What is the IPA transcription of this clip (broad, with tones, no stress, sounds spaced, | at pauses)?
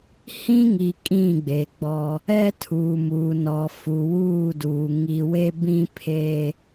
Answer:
h ĩ˦ ŋ i˨ kʼ ĩ˦˨ ɡ͡b e˨ ɡ͡b ɔ˦ | ɛ˦ tʰ uː˨ m uː˨ n ɔ˨ f u˨ w uː˦˨ d uː˨ ŋ i˨ w e˦ b ĩ˦ pʰ eː˦